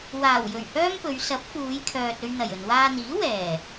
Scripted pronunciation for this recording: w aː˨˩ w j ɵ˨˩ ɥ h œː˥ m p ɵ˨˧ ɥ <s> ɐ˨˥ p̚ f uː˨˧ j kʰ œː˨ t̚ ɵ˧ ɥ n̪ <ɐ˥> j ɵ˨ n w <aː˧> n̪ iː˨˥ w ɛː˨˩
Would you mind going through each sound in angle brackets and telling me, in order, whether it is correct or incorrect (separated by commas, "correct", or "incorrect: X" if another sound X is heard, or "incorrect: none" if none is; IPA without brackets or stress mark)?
correct, incorrect: ɐ˨˩, correct